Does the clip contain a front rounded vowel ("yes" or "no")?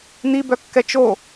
yes